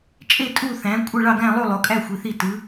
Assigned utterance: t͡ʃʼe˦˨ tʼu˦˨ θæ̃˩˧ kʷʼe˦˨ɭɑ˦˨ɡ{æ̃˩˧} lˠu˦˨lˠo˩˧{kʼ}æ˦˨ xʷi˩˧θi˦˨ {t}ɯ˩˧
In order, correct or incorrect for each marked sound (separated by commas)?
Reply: incorrect, correct, correct